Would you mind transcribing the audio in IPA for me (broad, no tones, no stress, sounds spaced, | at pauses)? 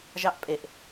ʒ ɑ ʔ pʼ e ʔ